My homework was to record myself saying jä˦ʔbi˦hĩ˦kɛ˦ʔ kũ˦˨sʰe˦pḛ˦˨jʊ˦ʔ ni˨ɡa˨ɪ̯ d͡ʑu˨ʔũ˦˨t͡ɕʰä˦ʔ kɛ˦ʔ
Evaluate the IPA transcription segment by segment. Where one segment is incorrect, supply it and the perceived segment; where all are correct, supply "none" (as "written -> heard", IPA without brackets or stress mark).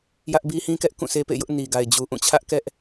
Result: none